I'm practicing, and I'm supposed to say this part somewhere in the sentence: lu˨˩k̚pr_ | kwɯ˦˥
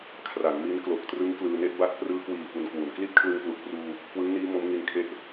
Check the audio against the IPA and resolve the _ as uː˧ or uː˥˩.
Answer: uː˧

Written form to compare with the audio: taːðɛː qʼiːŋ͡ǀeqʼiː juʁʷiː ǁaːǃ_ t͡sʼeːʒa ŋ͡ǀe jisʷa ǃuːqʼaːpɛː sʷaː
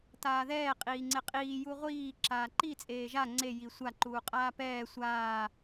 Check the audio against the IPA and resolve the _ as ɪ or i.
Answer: i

